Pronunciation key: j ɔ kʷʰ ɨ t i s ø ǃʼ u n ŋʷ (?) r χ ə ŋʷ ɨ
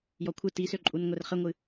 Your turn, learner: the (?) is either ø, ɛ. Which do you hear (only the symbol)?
ɛ